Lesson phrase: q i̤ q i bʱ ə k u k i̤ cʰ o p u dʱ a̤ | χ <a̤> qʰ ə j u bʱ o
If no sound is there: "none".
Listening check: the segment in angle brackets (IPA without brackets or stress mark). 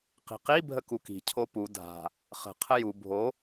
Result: ə̤